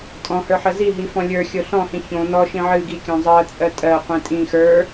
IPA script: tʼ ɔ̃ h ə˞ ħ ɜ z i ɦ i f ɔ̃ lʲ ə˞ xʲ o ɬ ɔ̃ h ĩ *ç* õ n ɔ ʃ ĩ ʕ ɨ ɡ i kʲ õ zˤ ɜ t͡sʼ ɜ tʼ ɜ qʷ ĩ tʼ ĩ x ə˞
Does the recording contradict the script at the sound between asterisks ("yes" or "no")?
no